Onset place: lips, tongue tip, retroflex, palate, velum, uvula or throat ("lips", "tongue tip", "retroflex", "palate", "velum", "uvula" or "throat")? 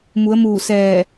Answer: lips